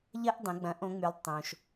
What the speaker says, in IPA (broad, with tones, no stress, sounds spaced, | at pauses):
ʎ ɐ˥ ʔ dˤ ə̃˩˧ ɡ͡b ɐ̃˩˧ ʔ õ˩˧ ŋ͡m y˩˧ lˠ tˤ õ˩ ʃ